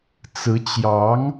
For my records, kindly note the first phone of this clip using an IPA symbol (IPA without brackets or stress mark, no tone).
t͡s